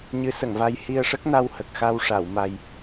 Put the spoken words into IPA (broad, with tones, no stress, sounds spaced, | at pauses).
ɲ ɨ˧˥ s ə˨˩˨ ŋ v a˧ j h i˧ ə̯ ʂ ə˦˥ k̚ n a˧ w h ə˨˩ k̚ x a˧ w ʂ a˨˩˨ w m a˧ j